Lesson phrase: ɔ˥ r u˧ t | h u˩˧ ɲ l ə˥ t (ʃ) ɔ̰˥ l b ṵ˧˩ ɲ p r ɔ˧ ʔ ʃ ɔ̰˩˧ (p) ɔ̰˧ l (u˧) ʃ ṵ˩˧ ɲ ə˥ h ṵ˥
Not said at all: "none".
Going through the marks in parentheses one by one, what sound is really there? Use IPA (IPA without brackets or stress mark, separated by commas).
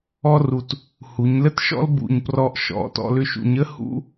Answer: ʃ, t, ʏ˧